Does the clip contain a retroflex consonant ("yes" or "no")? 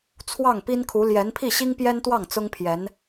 no